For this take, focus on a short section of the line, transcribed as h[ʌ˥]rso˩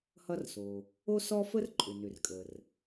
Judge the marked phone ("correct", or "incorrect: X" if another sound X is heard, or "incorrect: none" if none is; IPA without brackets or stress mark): correct